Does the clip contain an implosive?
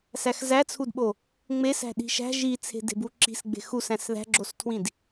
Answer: yes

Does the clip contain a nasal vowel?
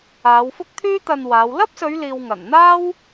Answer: no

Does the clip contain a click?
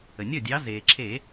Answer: yes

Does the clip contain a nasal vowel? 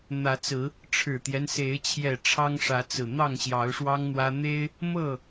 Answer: no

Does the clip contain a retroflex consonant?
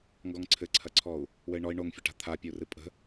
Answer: yes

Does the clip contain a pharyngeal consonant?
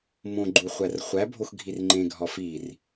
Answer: no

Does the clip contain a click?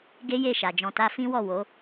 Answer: no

